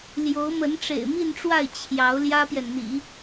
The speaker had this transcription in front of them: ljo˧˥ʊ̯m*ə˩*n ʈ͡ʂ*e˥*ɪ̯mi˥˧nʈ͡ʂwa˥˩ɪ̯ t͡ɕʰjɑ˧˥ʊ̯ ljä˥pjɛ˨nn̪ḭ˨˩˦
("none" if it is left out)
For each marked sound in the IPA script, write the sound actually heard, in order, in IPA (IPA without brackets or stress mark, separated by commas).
ə˧˥, ḛ˨˩